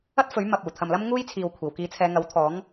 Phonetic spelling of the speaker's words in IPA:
ɐ˥ t̚ f ɵ˨˥ ɥ m ɐ˨ p̚ uː˨˩ t̪ʰ ɐ˨ m l ɐ˥ m ŋ uː˥ j t͡sʰ iː˨ w kʷʰ iː˨˩ w k iː˨˧ t͡sʰ ɛː˨˧ ŋ ɐ˨˥ w t̪ʰ ɔː˨˥ ŋ

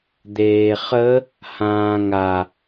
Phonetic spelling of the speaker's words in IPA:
d̪ eː χ ə | h ãː ŋ a

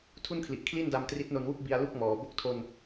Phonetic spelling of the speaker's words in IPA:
tʰ u˥˩ n kʰ l i˨˩ ʔ kʰ l i˥˩ n d a˧ m t r i˦˥ t̚ n o˧ n w u˥˩ k̚ b i˧ a̯ l u˥˩ k̚ m ɔː˩˦ b o˦˥ k̚ tʰ o˧ n

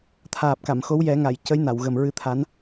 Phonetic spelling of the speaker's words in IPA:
t̪ʰ aː˨˩ p̚ k a˨˩˨ m x o˧˥ w j ɛ˨˩˦ ŋ a˨˩˨ j c ə˧˥ j n a˨˩˨ w ɣ ə˨˩ m ɹ ɨ˧ t̪ʰ a˧˥ n

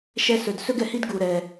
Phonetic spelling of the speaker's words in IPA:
ʃ ɛ˦ s ɵ˧ d s ɵ˦ ɡ ɛ˨ h i˦ d ɡ u˧ ɾ ɛ˧

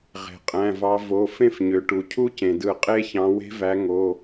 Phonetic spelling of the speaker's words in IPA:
ʁ e̤˩ qʼ æ̃˩˧˩ v ɑ˨˦ v o˩˧˩ f ẽ˦˨ f ɲ ø˩ ʈ u˩ cʰ u˦˥ c ẽ˩ d ɯ˧˩˧ qʼ e˦˥ ç ɑ̃˨˦ w e̤˦˥ v æ˨˦ ŋ o˩˧˩

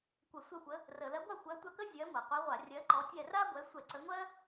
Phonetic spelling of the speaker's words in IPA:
kʷ ə˧˩˧ sʷ ɛ˦˨ xʷ ə˨˦ | r ə˧˩˧ l ɜ˨˦ ɡʷ a˦˨ xʷ ɜ˨˦ tʷ a˦˨ k ə˥ zʲ ɜ˨˦ ŋʷ ɜ˩ qʷ i˨˦ ʁʷ a˧˩˧ rʲ ɜ˨˦ ǃ ɔ˨˦ tʲ ɛ˦˨ r a˥ ɡʷ ɛ˨˦ sʷ ɛ˧˩˧ ǀ ə˨˦ ŋʷ ɜ˥

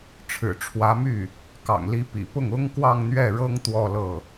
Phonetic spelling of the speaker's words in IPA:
ʈ͡ʂʰ ɻ̩˨˩ ʈ͡ʂʰ w ä˧˥ m y˥˩ | k ɑ̰˨˩ ŋ l i˧˥ p ḭ˨˩ p ʊ˥˩ ŋ ʊ˥ ŋ k w ɑ˥˧ ŋ n̪ ɥ ɛ˥˩ ɻ ɤ˥ ŋ t̪ w ɔ˥˧ l ɤ˥˩

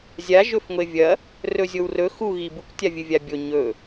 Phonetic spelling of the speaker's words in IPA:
zʲ a ʒ ɵ f ŋʷ e vʲ ɐ | r ɵ zʲ o w r ɵ x u ɣ i b u k tʲ a vʲ ɨ vʲ a bʲ o ɲ ɵ

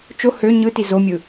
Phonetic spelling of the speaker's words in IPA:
t͡ʃ o h ø ɲ ɯ t i z o mʲ ɯ

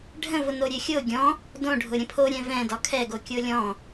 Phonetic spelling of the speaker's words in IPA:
ɖʱ ə̃ v ʊ n o ɾʲ ø xʲ o ɡʲ ɔ̃ | d õ ɖʱ ʊ ɾʲ ə̃ pʰ o ɾʲ ɛ̃ v ɛ̃ d ɒ kʰ ɛ ɡ o kʲ o lʲ ɔ̃

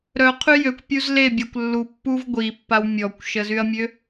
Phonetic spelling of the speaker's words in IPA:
ɾ œ qʰ y j ø kʷ pʲ u z l e bʲ a kʷ lː u pː u v ɡʷ i pː a w mʲ ɔ kʷ ʃ ə z y ɐ̯ mʲ ø

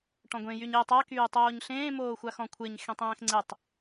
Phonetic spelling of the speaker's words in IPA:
ʈ ɔ̃ ɡʷ ẽ j y ɲ ɪː tˤ a k yː tˤ oː ɲ ɬ ẽː m oː xʷ a x ɔ̃ kʷʰ ɪː ɲ x ẽ tˤ ẽː x ŋ͡ǀ ɪ tˤ

